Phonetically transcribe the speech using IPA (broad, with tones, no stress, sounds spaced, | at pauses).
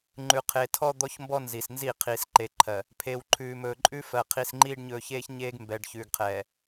ŋ͡ǃ ʉ˨ qʰ e˨ tʰ ɔ˦ d̪ ɔ˦ ç m b ɔ˦ n z i˨ s n z i˦˨ qʰ iː˨ s ǃ e˨ ǃʰ ɜ˨ | pʰ e˨ w ǃʰ ʉː˨ m ɵː˨ ǃʼ ʉ˦ f ɜ˨ qʰ i˨ s ŋ͡ǃ iː˦ ɖ ɲ ɵː˨ ç eː˦ ç ɲ eː˦ ɡ m b ɛ˨ ɖ ç ʉː˨ ɡ qʰ ɛː˨